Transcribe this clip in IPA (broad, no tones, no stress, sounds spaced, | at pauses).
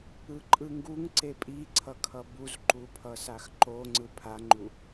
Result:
ɯ ǃʼ ɯ ŋ ɡ u ŋ ǀ e pʼ i ǀʰ ʌ kʰ ʌ b u z ǃ u pʰ ʌ s a x ǃ o ŋ͡ǀ ɯ pʰ a ŋ͡ǃ u